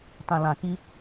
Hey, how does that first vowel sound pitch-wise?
low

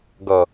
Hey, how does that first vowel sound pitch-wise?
low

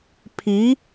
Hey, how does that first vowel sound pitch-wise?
rising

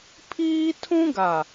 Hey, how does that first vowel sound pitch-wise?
high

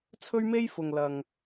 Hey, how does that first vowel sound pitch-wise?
high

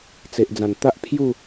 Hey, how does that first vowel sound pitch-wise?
low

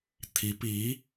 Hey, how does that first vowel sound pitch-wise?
rising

